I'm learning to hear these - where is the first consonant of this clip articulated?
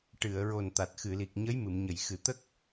retroflex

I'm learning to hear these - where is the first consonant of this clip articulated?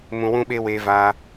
lips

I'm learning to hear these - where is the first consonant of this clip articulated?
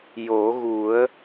palate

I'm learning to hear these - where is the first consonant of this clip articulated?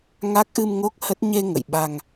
velum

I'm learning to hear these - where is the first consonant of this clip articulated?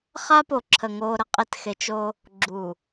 uvula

